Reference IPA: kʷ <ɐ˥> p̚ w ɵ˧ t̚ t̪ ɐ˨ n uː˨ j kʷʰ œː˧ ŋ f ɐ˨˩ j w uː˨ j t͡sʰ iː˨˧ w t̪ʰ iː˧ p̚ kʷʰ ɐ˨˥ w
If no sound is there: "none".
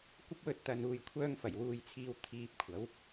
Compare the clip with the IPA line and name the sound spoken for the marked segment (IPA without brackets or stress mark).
ɐ˥